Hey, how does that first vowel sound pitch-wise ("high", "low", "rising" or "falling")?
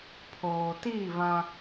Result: low